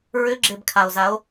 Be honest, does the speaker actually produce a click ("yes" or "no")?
yes